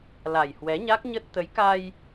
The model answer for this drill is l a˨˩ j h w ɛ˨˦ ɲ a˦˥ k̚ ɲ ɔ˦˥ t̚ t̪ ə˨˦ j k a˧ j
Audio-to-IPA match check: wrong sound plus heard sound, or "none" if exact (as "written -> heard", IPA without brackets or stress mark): ɔ˦˥ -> ə˦˥